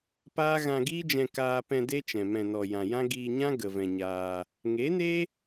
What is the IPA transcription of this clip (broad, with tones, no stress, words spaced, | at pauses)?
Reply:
paː˦ ɣã˧ɡiː˦d͡ʒɛ̃˧ kaː˧pɛ̃˧ de˦t͡ʃɛ̃˨ mɛ̃˨nɔ˨ jã˨jã˦ ɡiː˧ɲã˦ ɡə˧vɛ̃˧ɲaː˧ | ŋe˨˦ne˦